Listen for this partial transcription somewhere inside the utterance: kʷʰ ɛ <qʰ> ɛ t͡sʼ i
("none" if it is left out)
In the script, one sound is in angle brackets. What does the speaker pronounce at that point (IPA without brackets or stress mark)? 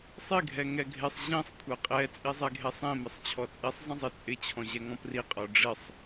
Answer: qʼ